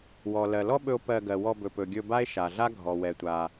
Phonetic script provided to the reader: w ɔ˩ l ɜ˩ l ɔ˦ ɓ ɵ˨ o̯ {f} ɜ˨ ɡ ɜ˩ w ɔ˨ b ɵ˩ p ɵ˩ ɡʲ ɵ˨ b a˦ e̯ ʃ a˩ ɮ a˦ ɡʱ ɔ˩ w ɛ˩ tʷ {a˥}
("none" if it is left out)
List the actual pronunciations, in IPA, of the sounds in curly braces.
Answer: p, a˩

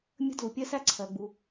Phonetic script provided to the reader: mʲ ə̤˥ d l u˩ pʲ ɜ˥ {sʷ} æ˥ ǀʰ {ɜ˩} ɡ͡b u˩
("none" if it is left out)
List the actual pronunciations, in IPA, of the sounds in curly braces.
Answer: s, ɜ˩

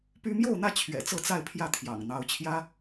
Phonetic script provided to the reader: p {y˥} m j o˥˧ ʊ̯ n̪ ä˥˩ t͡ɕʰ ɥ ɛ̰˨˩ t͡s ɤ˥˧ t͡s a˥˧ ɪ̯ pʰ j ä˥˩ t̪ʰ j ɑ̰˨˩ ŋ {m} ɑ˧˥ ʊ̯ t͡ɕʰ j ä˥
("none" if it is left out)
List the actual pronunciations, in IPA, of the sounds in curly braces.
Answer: y˥, n̪

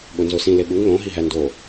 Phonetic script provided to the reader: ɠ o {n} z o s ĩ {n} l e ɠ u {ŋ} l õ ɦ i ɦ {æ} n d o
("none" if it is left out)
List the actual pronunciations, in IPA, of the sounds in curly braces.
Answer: n, none, ŋ, æ

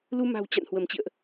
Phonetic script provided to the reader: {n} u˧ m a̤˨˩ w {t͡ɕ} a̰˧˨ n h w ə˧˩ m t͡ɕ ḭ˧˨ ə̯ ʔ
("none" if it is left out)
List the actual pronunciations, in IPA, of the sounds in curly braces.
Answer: l, t͡ɕ

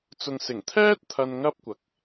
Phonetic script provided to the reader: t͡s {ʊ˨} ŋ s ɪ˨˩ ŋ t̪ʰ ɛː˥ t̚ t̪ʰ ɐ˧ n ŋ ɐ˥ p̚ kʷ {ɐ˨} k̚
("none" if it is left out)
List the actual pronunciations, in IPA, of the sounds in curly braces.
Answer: ʊ˨, ɐ˨

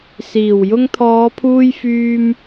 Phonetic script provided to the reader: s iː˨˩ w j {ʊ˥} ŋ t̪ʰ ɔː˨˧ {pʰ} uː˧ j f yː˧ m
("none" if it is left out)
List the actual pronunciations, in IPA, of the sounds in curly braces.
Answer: ʊ˧, pʰ

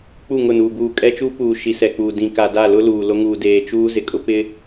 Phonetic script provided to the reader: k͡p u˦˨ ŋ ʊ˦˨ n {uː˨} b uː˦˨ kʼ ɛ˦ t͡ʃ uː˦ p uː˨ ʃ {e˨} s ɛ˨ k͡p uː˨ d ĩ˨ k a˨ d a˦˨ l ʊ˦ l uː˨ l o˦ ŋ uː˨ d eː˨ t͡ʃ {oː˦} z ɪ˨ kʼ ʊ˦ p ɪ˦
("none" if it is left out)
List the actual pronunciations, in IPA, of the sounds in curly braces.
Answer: uː˨, i˨, uː˦

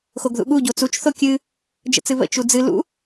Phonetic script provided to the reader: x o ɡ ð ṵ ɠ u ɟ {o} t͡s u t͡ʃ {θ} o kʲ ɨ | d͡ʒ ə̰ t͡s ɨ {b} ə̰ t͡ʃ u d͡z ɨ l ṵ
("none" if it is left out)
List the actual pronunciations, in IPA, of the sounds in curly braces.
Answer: o, θ, β

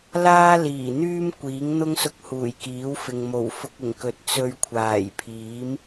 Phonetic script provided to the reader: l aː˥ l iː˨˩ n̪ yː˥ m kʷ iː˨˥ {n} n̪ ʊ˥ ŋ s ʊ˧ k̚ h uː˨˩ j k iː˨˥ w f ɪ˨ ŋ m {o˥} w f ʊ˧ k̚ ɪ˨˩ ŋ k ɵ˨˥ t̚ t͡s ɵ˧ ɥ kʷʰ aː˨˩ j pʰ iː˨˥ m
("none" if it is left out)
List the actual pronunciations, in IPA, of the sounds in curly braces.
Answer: ŋ, o˨˩

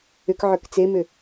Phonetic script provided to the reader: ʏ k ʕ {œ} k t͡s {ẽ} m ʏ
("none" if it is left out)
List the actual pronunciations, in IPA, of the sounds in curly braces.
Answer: œ, e

